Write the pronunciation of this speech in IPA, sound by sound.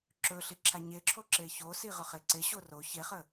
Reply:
ǁ ɵ ɬ i ǁʰ a ɲ e ǁʰ o ǁ e ç o s i ʁ ɵ χ e ǀ e ɕ o r o ç e χ ə

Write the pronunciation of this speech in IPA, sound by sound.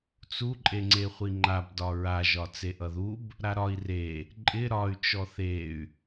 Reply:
t͡s u ǃʼ e ŋ͡ǀ e χʷ i ŋ͡ǃ a b d ɒ ɹ a ʒ ɒ t͡s e ʔ ʌ ð u b | ɾ a ɾ ɒ i̯ r e | ǃʼ ɪ ɾ ɒ y̯ t͡ʃ ɔ θ e y̯

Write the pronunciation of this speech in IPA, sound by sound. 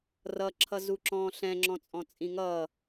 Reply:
r ʌ ǁʰ ʌ z u ǁ ɔ̃ː ɬ ɛ̃ ŋ͡ǁ ɔ̃ t͡sʼ ɔ̃ t͡sʼ ĩ ŋ ʌː

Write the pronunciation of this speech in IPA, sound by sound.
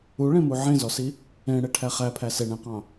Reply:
u ɭ ẽ m u ʕ ẽ z ɔ s i | ẽ ɽ e ʈʰ æ χ æ pʰ æ s e ɳ ẽ q ɑ̃

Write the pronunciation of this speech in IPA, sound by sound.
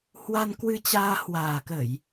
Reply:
h w a˧ n k w ɨ˧ t͡ɕ aː˧ h w aː˨˩ k ə˧˩˨ j

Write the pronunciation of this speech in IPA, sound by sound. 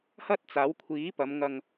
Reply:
h ɐ˥ t̚ t͡s aː˨˥ w kʷʰ iː˨˥ p ɐ˨˧ m ŋ ɐ˧ ŋ

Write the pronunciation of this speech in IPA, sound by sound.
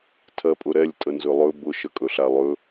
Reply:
tʰ ɜ pʼ ʊ ɾ ɛ lʲ tʼ ə n z ɵ lˠ ɵ b ʊ ʃ ə kʼ ɵ ɬ a lˠ ɵ

